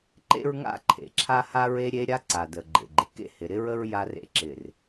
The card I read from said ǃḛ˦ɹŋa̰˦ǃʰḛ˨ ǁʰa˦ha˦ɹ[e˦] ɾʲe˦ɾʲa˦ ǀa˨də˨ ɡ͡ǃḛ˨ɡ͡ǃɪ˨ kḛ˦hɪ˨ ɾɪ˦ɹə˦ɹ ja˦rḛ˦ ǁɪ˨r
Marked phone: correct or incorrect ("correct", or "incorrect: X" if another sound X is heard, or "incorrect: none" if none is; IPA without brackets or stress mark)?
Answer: correct